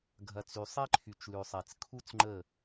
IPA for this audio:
ɡʱɐ˨t͡sy˨ sˤe˦ǃʰy˨t͡ʃlʉ˨sˤe˨t͡s kʰu˦t͡sŋ͡ǃə˦˨

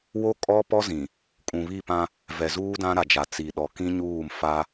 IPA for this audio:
wo˦ kʼɔ˦pɔ˦ zĩ˨ | kʼũ˨βi˦˨pã˦ | vɛ˨zuː˦dã˦ ɾa˨d͡ʒa˨ t͡si˨ɗɔ˨ kĩ˦ɲuː˦˨m fa˦

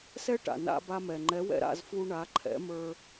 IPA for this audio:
sɛ˥ʈa̰˩ na̰˧ba˧mɛ˩ ŋ͡ǃɛ˩˥wɛ̰˧ɾa̰˥˩zfu˧ ɳa˩˥ǃʰɛ̰˩˥mə˞˧

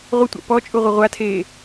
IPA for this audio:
ʁʷətʷa̰ pɔ t͡ʃʼuʁʷəʁʷatʰeː

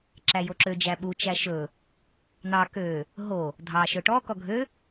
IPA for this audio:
ǁæjoǁø d͡ʒæɓu t͡ʃæʃɵ | n̪ɑ kø | ɦo | dʱɑ ʃɵʈɔ kɔɡʱø

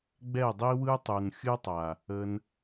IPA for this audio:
ɡ͡bɛ˦˨dˤi˦wɯ˦ tˤu˨nxʲɯ˦tˤa˨ | ə˧n

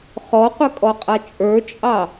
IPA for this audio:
χɔqʷɘkʼɔqʼa t͡ʃʼə˞t͡ʃʼɑ

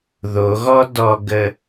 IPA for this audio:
ðoɣɔ dɔɡə

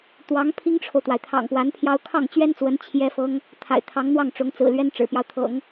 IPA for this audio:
t̪wɑ˧˥ŋpʰi˥ŋʈ͡ʂʰo˨ʊ̯t̪wa˩ɪ̯ t̪ʰɑ̰˨˩ŋpwa˧˥npʰjɑ˥ʊ̯ kʰɑ˥˩ŋt͡ɕɥɛ˥nt͡swə˧˥n t͡ɕʰjɛ˥fɤ˥ŋ | t̪ʰa̰˨˩ɪ̯t̪ʰɑ˧˥ŋ n̪wɑ˥˩ŋʈ͡ʂʊ˧˥ŋt͡sɹ̩˨˩ lɥɛ˥nʈ͡ʂɻ̩˨˩pjɑ˦ʊ̯t̪ʰɤ̰˨˩˦ŋ

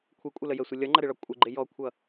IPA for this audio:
kʷʰikʷʼʌlə jəsʷɪ lʲʌŋ͡ǃʌɾɪɭɒ kʷʼɪɡ͡ǃɪ jɔkʷʰʌ

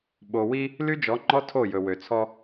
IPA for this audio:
ɓo˨wi˦ | ly˦d͡ʒɔ˨˦ŋ͡ǃɔ˦ tʰo˦˨jɵ˨ wø˨t͡sʰɔ˦

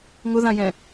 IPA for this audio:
ŋʊðãjɛ̃

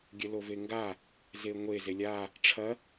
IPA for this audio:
ɡʲɘloveŋɡa | zeŋʷe zelʲa | ʈ͡ʂʰɐ

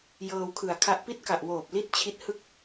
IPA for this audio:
jɤː˧wkʰɯ˨˩a̯kʰa˦˥ʔ pi˦˥t̚ka˨˩ʔwoː˨˩p̚ li˥˩t̚t͡ɕʰi˦˥t̚hɯ˥˩k̚

